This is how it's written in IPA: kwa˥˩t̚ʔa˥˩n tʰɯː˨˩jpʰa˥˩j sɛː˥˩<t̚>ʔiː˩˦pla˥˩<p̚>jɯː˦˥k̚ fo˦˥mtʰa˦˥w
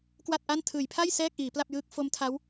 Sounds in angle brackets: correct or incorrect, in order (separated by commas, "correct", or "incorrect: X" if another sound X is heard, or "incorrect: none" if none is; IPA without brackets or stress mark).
incorrect: k̚, correct